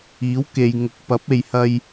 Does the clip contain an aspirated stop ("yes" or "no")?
no